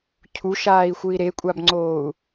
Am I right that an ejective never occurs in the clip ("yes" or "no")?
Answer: no